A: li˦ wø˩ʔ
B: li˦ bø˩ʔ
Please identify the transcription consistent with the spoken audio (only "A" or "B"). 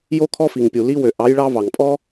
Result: A